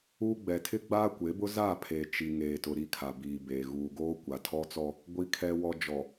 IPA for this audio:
uː˦ ɡ͡b ɛ˨ tʰ ɪ˦ ɡ͡b aː˦ kʷ e˨˦ b ʊ˦ z aː˦˨ pʰ eː˨ t͡ʃ i˨ ŋ eː˨ t ʊ˨ ɾ i˦˨ kʰ a˨ b iː˨ b eː˨ ɣ uː˨ ɡ oː˦ kʷ a˨ tʰ ɔ˦ t͡s ɔ˦ | ɡʷ i˨ kʰ ɛ˨ w ɔ˨ d͡ʒ ɔ˨

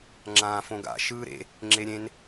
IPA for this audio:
ŋ͡ǁ ãː f õ ɡ a̰ ʃ ɯː ɾ ḛ | ŋ͡ǁ e ɾʲ ẽ n

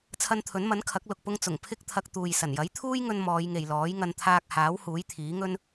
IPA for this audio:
t͡sʰ ɐ˧ n t̪ʰ ɵ˨˥ n m ɐ˨˥ n kʰ ɐ˨˥ k̚ l ʊ˨ k̚ p ʊ˧ ŋ t͡s ʊ˨˩ ŋ pʰ ɪ˥ k̚ t̪ʰ ɐ˧ k̚ t̪ uː˨ j s ɐ˨˩ n j ɐ˨˥ j t̪ʰ uː˥ j ŋ ɵ˧ n m ɔː˨˧ j ŋ e˨ j l ɔː˨˥ j ŋ ɐ˧ n t̪ʰ aː˧ k̚ h aː˨˥ w h uː˨˥ j t̪ʰ iː˨˥ ŋ ɵ˥ n

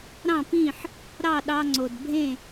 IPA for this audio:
ɾ ɑ̃˥˩ p ĩ˥˩ ħ | ɾ ɑ˥˩ ɗ ɑ˧ ŋ͡ǀ o˩ d bʱ ẽ˥˩

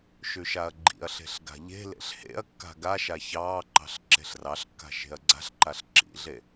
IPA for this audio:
ʃ ʉ ʃ a ɐ̯ ɡ͡ǃ ḭ ɐ̯ ɬ e̤ ɬ ɡ a̤ ʎ e̤ l ḛ ɬ h ḛ ɐ̯ kː a̤ ɡ a ʃ a ç ɑː ǃ ɑ̤ ɬ ǁ e̤ ɬ r ɑ ɬ kː a̤ ʃ e̤ ɐ̯ ɡ͡ǀ a̤ ɬ ǃ a ɬ ǁ ḭ ɮ e

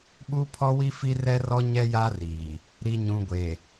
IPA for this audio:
ɓ u˦ pʰ ɔ˦ w i˦ f i˦ r ɛ˦ r ɔ˦ ɲ ɛ˦ j a˦ r iː˨ | ɾ i˨ ɲ ũ˨ ɡʷ e˨

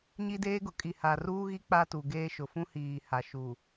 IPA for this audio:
ɲ i˦ d eː˦ ɡ ʊ˨ kʼ i˨ h a˨ r uː˦ ɣ i˦ k͡p a˦ t u˨ ɡ eː˦ ʃ ʊ˨ f ũ˦ h iː˨ h a˨ ʃ u˨

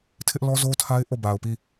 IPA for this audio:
tʰ ɪ˦ ʔ l ɔ˦ z o˦ tʰ a˦ ɪ̯ ʔ o˦˨ b a˨ ʊ̯ p i˦˨

